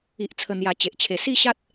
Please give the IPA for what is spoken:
i˨ʔt͡sʰə˨˩n̪ja˨˩ t͡ɕe˨ʔt͡ɕʰe˧ si˥˧ɕa˦t̚

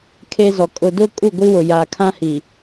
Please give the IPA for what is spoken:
kʰe˦zɔ˨ kʼʊ˨dʊ˦ kʼu˦˨ɡʷi˦wʊ˨ jaː˨kʰã˦hi˨

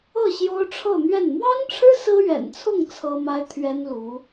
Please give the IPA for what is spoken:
ɤ˥˩ɕjo˥ʊ̯ʈ͡ʂʰɤ˥˧n̪ɥɛ˥˩n mwɑ˥ŋʈ͡ʂʰɻ̩˥ sɹ̩˥ɥɛ̰˨˩nt͡sʰʊ˥˩ŋ t͡sʰɤ˥ma˥ɪ̯t̪ʰɥɛ˥nlu˧˥

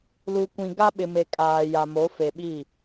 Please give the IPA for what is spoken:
lu˨kʷĩ˨ ɡa˦ɓɪ˨me˨ kʼaː˨ja˨ mo˨˦fe˨ɓi˦˨

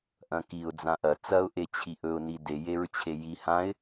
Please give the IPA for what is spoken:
ʔɐ̃kiʊ̯ d͡zãʔɐ t͡sɐʊ̯ ʔet͡ɕʰiʔɵʊ̯ nide jeɹt͡ɕʰeji hãɪ̯

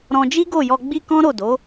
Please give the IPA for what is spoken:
ɾɔ̃˧d͡ʒi˦ɡo˦˨jɔ˧ ɡ͡bi˦kɔ̃˦ɾo˦˨do˨˦

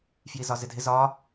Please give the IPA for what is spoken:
fjizɒzɪdʱɪ zɒ

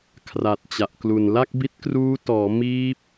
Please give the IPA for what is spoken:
kʰra˨˩t̚t͡ɕa˨˩ʔklu˨˩n la˥˩k̚bi˦˥t̚kruː˦˥ tɔː˩˦miː˦˥p̚

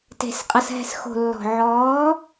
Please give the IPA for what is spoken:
te̤˨s qʼɐ˨sɦɛ̤˨s xo̤˨lːɔ̤˨ ʕɔː˨˦

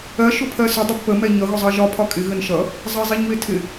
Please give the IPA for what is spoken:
ɜ ʃʊpʰɜsʊ dˤɪbpə mɛɲʌ ɣʊzˤɜʒɒ pʰɒkʼɪ ɣənʃʌ | zˤɜzˤiɲwɪtʰɪ

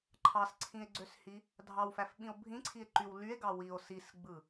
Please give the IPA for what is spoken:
ǃʰɑsǀʰĩe̯ɡ͡ǀøshi | dʱɑwfæfɓĩo̯ bʱĩǀʰie̯ǃyw lye̯ɡɑ wio̯ sisɡ͡bɯ

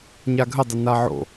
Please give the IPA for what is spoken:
ɲaɡʱədˤə naʕo̰

